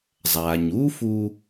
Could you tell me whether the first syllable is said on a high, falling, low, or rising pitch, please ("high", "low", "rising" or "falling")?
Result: low